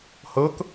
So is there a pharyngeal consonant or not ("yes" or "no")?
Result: no